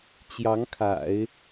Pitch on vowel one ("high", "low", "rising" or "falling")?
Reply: rising